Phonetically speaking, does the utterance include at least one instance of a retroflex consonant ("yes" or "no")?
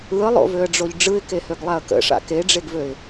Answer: yes